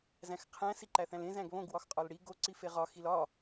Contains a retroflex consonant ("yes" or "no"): yes